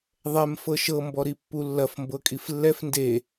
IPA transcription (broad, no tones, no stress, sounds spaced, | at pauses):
ðˤ ɛ m f ɤ ʃ ɤ m b ɔ ɾ i pː u lː ɐ f m b ɤ kʼ i f lː ɛ f n d e